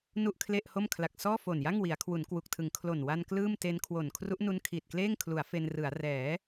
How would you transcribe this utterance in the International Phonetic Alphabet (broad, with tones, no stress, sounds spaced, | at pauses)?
n u˥˩ ʔ kʰ l e˥˩ ʔ h o˥˩ m kʰ l a˨˩ k̚ s ɔː˥˩ f o˨˩ n j a˥˩ ŋ w i˩˦ a̯ kʰ w u˩˦ n k w u˨˩ k̚ tʰ ɯ˩˦ ŋ kʰ l o˨˩ n w a˧ n k l ɯː˥˩ m t e˦˥ n kʰ w o˨˩ n kʰ r u˦˥ ʔ n u˦˥ n kʰ iː˨˩ t̚ k l eː˥˩ ŋ kʰ l u˩˦ a̯ f e˧ n r ɯ˩˦ a̯ r ɛː˩˦